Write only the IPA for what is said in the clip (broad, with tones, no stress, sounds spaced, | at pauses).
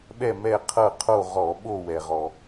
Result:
ɓ ɛ˦˨ m ɛ˦˨ qʰ ɤ˦˨ qʰ o˦˨ ʁ ɔ˧˩˧ ɓ o˦˨ w ɛ˩ ʁ ɔ˩